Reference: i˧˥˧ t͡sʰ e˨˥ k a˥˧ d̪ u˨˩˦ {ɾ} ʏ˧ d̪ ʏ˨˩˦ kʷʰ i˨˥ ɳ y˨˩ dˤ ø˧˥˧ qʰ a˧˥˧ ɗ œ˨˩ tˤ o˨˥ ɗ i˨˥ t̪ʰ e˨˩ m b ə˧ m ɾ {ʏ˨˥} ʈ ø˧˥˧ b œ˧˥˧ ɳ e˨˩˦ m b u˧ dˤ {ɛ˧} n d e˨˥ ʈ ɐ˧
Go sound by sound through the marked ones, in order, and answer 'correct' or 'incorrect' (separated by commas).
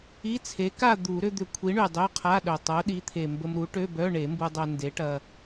correct, incorrect, incorrect